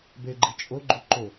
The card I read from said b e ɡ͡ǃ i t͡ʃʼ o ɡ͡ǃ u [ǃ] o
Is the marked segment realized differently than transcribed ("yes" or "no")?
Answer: no